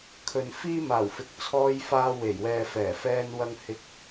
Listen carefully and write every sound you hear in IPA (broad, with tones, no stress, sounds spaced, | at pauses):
kʰ ɵ˨ n f iː˥ m aː˨˩ w f ɪ˨ k̚ t͡sʰ ɔː˧ j f aː˧ w e˨˩ j w ɛː˨ f ɛː˨˩ f ɛː˧ n w ɐ˧ ŋ h ɪ˧ k̚